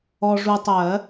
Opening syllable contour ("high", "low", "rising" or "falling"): low